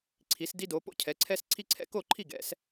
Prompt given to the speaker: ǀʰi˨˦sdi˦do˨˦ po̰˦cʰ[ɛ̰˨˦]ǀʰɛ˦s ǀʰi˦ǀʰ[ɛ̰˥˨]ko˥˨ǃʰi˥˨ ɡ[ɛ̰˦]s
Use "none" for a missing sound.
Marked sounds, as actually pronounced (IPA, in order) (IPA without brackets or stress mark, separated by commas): ɛ˨˦, ɛ̰˥˨, ɛ̰˨˦